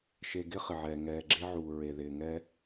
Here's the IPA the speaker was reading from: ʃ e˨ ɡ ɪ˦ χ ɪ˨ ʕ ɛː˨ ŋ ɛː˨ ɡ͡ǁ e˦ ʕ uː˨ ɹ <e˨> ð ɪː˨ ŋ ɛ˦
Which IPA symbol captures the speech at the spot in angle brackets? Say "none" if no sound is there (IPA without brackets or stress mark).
e˨